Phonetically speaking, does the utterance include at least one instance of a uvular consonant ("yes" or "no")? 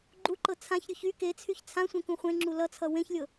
yes